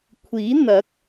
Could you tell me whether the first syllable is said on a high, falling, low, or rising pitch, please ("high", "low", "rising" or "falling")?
rising